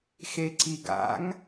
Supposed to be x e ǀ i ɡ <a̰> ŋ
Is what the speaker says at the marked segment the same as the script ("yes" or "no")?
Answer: yes